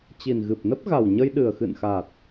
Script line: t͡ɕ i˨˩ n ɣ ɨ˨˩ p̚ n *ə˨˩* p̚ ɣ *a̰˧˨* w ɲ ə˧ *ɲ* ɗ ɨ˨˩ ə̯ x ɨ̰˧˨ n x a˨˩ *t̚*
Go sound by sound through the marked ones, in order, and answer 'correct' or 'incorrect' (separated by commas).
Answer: incorrect, incorrect, incorrect, correct